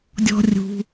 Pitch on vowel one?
high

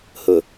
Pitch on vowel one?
low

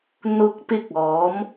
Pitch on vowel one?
rising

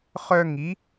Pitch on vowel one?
high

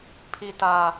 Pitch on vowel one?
low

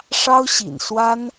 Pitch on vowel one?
high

